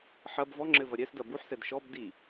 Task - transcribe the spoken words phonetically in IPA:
ħ ɐ b v ɔ ŋ͡ǁ ɘ v ɐ ɾʲ ɛ s d ɐ b u ħ s ɛ d ʃ ɔ b d i

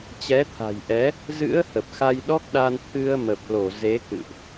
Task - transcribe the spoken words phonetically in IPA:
t͡ɕ ɛ˨˦ t̪ʰ a̤˨˩ j ʔ ɛ˨˦ | z ɨ̰˧˥ ə̯ h ə˨˩ p̚ x a˧ j ɗ ɔ˦˥ k̚ ɗ a˧ n t̪ʰ ɨ˧ ə̯ m ə˨˩ p̚ l o˧˩ z e˨˦ k ɨ̰˧˨ ʔ

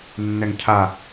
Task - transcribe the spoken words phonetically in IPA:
nː ɛ ŋ cʰ a

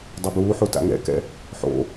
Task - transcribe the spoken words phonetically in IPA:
dˤ ɛ b uː ħ u t a̰ ŋ ɛ̰ k ɛ̰ | ħ o̰

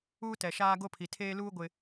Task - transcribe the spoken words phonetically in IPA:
uː˦ t ɛ˨ ʃ aː˦ ɡ o˦ pʰ i˨ tʰ eː˦ l uː˦ ɡʷ ɪ˨

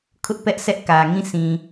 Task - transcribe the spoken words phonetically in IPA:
kʰ ʊ˦ ʔ p ɛ˦ ʔ s ɛ˦ ʔ k ä˨ ŋ ĩ˦˨ sʰ ĩ˨

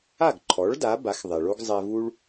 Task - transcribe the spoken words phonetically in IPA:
a˥˩ ɡ ǃʰ ɔ˩˥ ɭ d a˩˥ b a˩˥ x ðˤ ɛ˩ ɭ o˥ ɡ zˤ ɛ˧ v u˥ ɭ

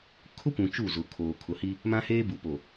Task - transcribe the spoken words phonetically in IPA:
kʰ ʊ˦ kʷ ũ˨ t͡ʃ u˦˨ z ʊ˨ kʰ oː˨ kʰ ʊ˨ h i˦ | m ã˦ h eː˦ b u˨ p o˨

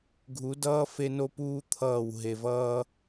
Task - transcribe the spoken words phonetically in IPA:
ɡʱ u˨˦ d ʌː˦ f e˦ n o˦ p uː˦ t̪ʰ ʌː˦˨ w ɦ e˨ v ʌː˦

